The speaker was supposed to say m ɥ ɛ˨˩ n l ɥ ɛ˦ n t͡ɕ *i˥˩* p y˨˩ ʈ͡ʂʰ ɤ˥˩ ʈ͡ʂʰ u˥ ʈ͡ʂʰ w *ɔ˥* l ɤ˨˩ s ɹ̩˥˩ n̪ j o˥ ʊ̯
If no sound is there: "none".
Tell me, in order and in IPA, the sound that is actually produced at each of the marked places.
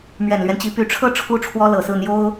i˧˥, ɔ˥

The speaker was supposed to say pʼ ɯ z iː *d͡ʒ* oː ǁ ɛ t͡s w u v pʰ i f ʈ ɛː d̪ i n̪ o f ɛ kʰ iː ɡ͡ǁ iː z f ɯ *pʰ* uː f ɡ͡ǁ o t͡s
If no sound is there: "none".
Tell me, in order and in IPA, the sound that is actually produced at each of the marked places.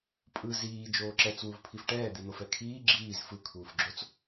d͡ʒ, kʰ

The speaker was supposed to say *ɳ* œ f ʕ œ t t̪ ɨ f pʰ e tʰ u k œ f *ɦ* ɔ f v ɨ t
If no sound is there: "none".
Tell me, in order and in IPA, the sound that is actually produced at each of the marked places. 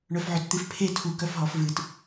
ɳ, ɦ

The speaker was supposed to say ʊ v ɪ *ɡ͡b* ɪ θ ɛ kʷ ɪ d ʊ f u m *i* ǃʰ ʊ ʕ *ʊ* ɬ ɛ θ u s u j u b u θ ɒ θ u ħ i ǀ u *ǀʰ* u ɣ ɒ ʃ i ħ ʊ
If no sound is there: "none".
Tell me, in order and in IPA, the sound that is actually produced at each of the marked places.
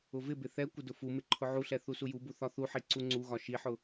b, ɪ, u, ŋ͡ǀ

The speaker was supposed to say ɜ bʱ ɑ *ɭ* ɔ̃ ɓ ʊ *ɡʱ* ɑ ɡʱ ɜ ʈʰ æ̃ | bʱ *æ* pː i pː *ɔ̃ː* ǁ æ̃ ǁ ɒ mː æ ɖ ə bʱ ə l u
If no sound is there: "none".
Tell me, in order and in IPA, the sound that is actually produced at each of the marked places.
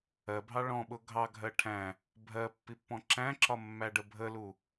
ɭ, ɡʱ, ɜ, ɔ̃

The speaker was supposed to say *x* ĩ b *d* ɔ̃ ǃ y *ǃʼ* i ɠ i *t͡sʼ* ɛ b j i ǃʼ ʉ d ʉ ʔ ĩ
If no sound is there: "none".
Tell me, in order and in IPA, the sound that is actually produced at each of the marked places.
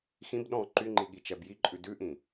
x, ɗ, ŋ͡ǃ, t͡ʃ

